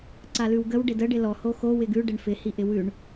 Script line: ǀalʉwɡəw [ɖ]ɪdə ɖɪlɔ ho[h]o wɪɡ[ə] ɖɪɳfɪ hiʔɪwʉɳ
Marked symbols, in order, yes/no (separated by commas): yes, no, no